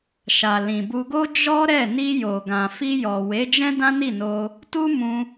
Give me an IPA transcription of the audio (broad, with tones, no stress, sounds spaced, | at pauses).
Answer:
ʃ a˨ l ĩ˨ b u˧ ɡ o˦ d͡ʒ ɔ˦ ɾ ɛ˦˨ n i˧ j o˨ ɡ ã˨ f i˧ j ɔ˨ w e˨˦ d͡ʒ ɛ̃˦ d ã˦ n i˦˨ n o˧ | t u˦ m ũ˧